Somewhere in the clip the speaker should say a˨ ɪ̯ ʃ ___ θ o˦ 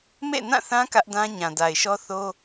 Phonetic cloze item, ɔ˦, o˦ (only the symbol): ɔ˦